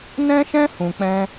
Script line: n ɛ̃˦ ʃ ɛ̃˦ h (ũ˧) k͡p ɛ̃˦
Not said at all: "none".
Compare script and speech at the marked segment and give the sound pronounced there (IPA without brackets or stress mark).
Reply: ũ˧